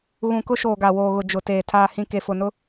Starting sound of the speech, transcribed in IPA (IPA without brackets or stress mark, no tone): ɣ